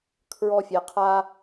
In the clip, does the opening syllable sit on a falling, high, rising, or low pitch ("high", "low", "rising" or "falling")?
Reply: high